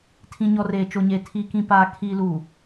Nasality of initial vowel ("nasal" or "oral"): nasal